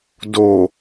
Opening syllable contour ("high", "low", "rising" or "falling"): low